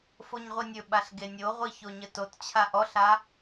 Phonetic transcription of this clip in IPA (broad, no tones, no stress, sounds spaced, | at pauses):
f o ɲ ʁʷ i nʲ ɵ ɓ a ɬ ɡ e nʲ o ʁʷ i ç o ɲ ə t o t t͡ɕʰ a ʔ ɔ ɬ a